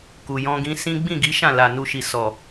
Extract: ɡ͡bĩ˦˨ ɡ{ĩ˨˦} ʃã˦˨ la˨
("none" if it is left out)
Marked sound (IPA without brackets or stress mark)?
i˨˦